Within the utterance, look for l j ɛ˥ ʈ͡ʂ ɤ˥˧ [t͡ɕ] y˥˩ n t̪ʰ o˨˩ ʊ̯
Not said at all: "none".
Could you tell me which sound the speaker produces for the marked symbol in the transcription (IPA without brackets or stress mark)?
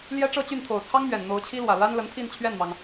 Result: t͡ɕ